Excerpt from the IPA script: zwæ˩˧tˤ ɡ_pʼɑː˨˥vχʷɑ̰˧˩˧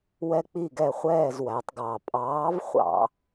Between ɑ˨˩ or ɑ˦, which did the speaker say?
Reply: ɑ˨˩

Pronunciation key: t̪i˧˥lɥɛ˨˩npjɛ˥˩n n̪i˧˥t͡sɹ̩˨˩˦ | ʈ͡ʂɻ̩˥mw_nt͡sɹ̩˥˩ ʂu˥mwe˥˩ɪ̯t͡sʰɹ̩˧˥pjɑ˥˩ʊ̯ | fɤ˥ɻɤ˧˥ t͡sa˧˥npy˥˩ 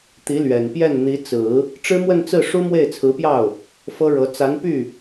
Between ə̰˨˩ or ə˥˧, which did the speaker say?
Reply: ə˥˧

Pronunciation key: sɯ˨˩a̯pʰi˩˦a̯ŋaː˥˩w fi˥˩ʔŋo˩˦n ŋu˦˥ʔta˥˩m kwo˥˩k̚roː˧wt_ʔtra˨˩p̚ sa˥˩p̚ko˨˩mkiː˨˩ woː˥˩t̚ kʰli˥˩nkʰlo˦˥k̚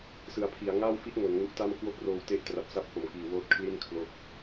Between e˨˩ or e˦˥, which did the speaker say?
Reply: e˦˥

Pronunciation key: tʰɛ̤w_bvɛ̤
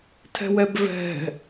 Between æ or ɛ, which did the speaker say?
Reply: ɛ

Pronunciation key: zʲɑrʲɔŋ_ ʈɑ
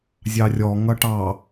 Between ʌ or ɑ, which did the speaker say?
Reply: ʌ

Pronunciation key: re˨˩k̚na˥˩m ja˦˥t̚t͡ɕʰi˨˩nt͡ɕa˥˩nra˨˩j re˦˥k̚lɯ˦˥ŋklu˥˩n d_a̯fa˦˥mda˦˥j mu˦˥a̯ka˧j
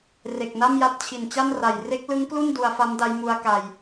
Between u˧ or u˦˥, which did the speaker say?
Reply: u˧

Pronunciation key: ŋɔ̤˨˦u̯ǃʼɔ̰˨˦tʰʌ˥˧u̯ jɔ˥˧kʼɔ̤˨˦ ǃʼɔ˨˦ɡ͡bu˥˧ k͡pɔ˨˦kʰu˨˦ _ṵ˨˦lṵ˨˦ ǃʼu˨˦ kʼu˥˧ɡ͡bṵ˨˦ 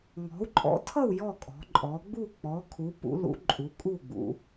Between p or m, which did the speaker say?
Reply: p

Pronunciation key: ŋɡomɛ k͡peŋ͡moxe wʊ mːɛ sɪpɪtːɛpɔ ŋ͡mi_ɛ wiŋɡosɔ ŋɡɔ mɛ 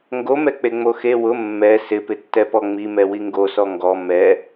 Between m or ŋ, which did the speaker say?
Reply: m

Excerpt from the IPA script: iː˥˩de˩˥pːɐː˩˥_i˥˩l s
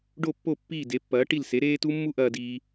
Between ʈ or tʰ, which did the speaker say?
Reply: ʈ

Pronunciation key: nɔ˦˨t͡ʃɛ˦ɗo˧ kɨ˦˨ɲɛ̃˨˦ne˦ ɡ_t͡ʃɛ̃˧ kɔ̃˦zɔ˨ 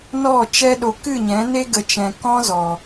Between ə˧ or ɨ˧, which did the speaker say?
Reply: ə˧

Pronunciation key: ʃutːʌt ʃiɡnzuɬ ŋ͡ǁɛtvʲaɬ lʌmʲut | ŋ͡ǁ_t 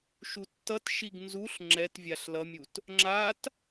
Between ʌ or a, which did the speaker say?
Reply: a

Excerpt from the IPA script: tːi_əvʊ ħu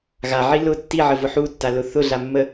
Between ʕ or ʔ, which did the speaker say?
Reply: ʕ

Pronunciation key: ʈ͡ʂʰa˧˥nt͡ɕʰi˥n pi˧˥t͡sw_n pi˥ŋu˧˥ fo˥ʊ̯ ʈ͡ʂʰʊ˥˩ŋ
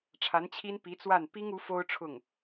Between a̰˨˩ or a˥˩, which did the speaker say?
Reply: a˥˩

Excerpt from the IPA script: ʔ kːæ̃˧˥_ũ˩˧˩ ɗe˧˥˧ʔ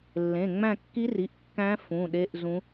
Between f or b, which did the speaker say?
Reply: f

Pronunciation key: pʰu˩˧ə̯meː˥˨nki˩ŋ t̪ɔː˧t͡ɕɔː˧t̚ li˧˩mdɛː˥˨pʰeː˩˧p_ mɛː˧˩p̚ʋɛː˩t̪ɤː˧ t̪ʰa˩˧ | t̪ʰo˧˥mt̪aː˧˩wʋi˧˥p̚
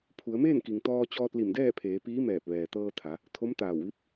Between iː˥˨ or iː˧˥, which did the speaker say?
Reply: iː˧˥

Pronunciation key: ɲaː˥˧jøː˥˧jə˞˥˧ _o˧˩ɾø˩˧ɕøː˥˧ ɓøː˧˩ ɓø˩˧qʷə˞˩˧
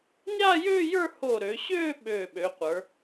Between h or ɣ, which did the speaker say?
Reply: h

